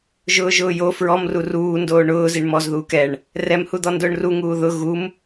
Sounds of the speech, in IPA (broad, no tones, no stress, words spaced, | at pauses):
ʒʊːʒʊːjo fɹɔmru ruː ndoːɳʊːziɳ mɔzðuːk ɛɳ | rɛmhud̪ɔ ndʊːɳruŋuː ðʊ ɣum